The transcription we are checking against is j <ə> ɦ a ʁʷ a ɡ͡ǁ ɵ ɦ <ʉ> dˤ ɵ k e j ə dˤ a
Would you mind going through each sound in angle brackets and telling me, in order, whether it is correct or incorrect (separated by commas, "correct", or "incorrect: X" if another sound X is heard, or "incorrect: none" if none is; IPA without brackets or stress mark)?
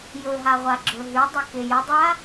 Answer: incorrect: ɵ, correct